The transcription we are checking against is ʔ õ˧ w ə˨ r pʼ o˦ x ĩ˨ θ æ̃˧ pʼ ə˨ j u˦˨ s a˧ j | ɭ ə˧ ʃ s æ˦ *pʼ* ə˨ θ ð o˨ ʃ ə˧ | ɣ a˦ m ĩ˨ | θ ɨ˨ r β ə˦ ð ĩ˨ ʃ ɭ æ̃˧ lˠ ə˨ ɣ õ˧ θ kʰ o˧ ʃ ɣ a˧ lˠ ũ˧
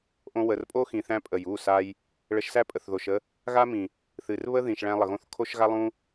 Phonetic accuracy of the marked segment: correct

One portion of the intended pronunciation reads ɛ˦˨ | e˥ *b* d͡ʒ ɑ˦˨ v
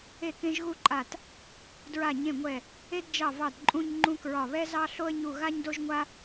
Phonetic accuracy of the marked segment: incorrect: d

